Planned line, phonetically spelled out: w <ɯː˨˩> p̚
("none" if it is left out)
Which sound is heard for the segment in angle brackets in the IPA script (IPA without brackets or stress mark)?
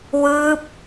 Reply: ɯː˦˥